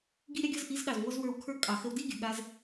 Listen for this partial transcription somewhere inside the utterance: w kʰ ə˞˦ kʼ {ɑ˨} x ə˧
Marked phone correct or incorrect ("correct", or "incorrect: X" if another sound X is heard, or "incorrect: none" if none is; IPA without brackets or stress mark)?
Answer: correct